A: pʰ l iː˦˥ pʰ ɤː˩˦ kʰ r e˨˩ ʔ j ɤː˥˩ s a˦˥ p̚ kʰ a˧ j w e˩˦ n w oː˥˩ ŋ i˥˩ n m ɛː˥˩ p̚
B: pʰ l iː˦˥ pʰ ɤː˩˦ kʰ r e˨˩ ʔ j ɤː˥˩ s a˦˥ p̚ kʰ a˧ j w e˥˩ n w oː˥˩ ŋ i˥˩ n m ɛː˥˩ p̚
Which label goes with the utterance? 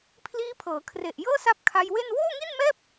B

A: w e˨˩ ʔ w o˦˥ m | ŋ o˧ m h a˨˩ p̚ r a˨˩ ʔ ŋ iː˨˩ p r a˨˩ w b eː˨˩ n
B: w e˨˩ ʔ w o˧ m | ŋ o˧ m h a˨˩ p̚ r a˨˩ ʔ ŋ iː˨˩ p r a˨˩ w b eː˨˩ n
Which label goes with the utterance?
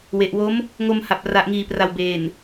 A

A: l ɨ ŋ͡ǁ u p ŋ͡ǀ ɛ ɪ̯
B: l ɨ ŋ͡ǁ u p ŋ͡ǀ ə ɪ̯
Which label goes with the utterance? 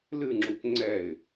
A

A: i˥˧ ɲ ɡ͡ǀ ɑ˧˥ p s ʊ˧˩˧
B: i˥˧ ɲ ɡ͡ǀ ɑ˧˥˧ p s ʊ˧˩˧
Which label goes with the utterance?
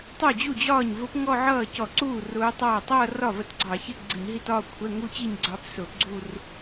A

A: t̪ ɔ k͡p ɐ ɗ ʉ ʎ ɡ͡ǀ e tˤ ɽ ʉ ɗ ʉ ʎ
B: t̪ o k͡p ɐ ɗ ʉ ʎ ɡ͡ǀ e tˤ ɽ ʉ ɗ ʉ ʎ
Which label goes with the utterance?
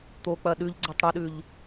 B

